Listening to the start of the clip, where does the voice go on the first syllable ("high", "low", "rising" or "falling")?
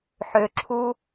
low